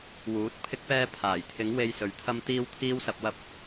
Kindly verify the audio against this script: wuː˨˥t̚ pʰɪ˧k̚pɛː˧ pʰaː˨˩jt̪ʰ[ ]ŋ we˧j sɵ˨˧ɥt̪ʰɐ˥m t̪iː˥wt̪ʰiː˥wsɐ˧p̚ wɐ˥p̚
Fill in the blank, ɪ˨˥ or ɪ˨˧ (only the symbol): ɪ˨˥